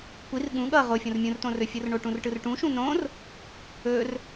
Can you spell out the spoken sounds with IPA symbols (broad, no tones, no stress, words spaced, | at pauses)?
kʷir ɠũ ɠʌ ʁofʲõr mʲũrtõrɵfʲɯr ɳoʈũrʈɯrʈũ ʃũnõr | ɵr